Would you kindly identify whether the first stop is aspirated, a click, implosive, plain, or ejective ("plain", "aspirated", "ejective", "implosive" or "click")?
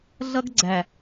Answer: plain